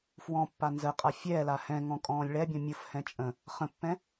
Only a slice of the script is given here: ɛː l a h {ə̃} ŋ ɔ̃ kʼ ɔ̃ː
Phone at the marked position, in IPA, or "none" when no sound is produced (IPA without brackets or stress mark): ɛ̃